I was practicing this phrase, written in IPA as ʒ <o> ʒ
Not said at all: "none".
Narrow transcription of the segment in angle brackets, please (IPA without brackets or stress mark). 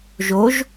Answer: o